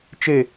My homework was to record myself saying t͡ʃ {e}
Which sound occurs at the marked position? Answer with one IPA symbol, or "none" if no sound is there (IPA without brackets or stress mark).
e